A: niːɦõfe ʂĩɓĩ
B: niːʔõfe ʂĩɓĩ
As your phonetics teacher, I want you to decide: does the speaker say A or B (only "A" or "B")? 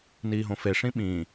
A